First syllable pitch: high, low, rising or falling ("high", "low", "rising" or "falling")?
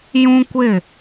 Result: high